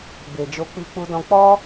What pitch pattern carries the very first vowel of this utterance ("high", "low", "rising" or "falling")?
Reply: low